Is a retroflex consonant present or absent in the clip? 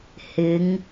absent